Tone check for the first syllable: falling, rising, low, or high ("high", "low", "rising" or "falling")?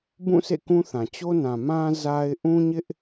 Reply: falling